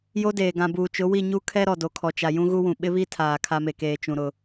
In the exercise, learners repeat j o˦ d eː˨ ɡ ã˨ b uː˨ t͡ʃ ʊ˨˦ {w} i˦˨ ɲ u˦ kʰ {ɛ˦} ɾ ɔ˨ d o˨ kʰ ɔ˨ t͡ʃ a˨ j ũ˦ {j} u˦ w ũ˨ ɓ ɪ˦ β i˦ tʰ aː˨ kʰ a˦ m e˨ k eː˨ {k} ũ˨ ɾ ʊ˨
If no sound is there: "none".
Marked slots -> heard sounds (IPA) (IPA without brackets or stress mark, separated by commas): w, ɛ˦, ɣ, t͡ʃ